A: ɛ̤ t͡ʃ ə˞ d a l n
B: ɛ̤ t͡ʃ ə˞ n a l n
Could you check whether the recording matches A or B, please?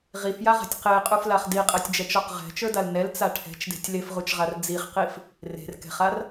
A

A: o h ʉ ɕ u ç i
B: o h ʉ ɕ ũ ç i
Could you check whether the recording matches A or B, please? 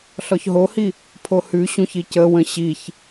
B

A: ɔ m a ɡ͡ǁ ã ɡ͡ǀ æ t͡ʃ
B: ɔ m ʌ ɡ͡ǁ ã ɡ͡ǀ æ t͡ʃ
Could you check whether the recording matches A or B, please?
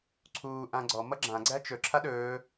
B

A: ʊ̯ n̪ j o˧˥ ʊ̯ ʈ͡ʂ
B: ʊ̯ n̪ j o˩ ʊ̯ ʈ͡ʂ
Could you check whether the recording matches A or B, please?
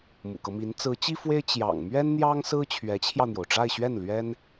B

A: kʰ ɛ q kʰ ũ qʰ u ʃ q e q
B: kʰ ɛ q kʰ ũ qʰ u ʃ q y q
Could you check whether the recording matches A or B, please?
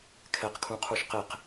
A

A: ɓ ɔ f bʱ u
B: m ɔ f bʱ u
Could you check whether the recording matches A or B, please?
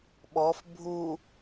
A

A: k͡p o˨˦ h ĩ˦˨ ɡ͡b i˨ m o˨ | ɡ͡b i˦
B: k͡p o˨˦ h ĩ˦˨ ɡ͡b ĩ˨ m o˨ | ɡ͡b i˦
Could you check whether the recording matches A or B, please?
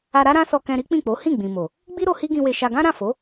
B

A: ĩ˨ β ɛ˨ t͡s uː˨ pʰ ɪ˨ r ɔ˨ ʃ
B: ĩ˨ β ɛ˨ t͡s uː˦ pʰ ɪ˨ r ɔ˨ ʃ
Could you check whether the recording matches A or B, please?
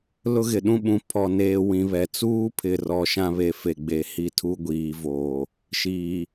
B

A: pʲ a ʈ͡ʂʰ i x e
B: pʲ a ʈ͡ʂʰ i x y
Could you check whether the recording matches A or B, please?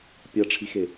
A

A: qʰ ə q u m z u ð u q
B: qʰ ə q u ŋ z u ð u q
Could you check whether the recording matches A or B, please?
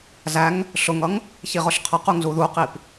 B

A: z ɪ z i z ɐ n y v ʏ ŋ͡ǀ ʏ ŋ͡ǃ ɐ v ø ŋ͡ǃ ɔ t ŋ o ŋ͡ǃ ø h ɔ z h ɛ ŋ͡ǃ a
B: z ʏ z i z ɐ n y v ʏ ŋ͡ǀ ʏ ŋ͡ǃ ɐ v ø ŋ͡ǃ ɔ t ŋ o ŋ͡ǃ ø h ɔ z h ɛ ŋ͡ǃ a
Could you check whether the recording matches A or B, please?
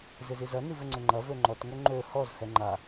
A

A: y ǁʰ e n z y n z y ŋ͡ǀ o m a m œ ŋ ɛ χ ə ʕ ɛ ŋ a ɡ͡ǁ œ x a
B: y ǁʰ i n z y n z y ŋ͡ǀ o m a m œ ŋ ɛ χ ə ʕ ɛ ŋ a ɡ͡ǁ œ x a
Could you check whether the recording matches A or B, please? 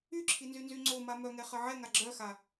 B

